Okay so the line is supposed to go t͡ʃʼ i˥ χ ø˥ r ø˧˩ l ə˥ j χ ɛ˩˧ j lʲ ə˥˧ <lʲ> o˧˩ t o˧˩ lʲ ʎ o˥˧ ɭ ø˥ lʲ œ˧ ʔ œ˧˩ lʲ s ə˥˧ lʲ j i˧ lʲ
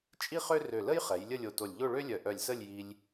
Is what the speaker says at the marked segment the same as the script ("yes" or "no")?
yes